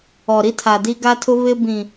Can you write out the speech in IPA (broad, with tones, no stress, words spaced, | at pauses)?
ɔ˨ɾi˦tʰa˨di˦ ɡa˦tʰʊ˦ βɪ˦bĩ˨